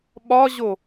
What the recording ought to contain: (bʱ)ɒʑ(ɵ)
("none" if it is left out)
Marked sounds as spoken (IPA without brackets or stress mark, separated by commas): ɓ, o